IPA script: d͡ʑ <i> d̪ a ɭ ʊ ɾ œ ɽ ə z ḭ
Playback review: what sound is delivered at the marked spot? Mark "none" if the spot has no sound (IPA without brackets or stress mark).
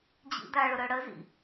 ḭ